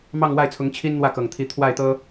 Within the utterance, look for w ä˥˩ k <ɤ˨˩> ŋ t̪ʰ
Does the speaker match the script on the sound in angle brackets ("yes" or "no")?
yes